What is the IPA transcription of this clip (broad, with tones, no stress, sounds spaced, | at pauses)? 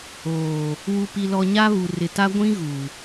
oː˨ | w u˨ p i˨ l ɔ˨ ɲ a˦ β u˨ r ɪ˨ t a˦ ɡʷ ĩ˦ ɣ u˨